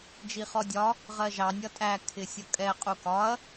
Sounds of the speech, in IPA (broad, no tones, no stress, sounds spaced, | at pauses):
d͡ʒ i χ ɔ dʲ ɒ | ʁ ɜ ʒ ɑ nʲ ʌ tʼ æ kʰ ɪ sʲ ʌ kʼ ɛ qʼ u k ɒ ɐ̯